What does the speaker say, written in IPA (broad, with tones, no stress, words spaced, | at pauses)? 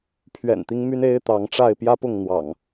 pʰɥɛ̰˨˩nt̪i˦ŋ my˦ne˦ɪ̯t̪ɑ˨˦ŋʈ͡ʂa˥˨ɪ̯ pjä˦pʊ˥˨ŋn̪wɑ̰˨˩ŋ